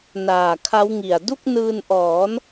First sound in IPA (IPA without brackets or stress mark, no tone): n